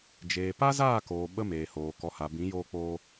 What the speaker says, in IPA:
d͡ʒeː˨ pa˦zaː˦˨koː˨ ɓə˦meː˨hoː˨ kɔ˨ha˨bĩ˨˦ joː˧k͡poː˧

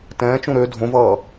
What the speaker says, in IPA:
tɛ̃ːt͡ʃũ ɾø dʱõvʌː

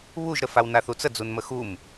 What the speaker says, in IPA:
βuʒɾəfaw naθut͡sə d͡zunməxum

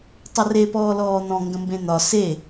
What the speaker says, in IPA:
tˤəre pɔːlɔːn̪ɔ̃ ŋɡə̃mbẽn̪ɒ se

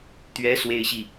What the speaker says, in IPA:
t̪ɥɛ˧˥ swe˥ɪ̯ɕi˥˩

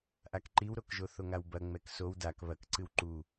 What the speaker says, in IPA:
ʔakǃiwɾokʒo θoŋawbɐ ŋ͡mɛksow dak βɐk ǀɨwǃu

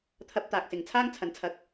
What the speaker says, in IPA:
t̪ʰɐ˧p̚t̪aː˨k̚sɪ˨ŋ t͡sʰaː˥ŋt͡sʰɐ˨˧nt͡sʰɐ˧k̚

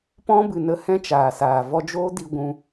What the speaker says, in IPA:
pɔ̃˦bɨ˨nə˧ hɛ̃˦t͡ʃaː˨saː˨ vɔ˧d͡ʒoː˦di˧ ɡʷũ˧

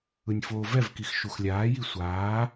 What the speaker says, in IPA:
ɯnʲfoːvɛvkix ʃuxlʲaːji sʷaː

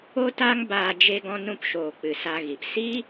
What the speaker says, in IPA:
o˦ta˦ŋbaː˧ d͡ʒe˧ɡɔ̃˧ nũ˧pʃoː˨ k͡pɨ˨sa˧ɣi˨p si˦

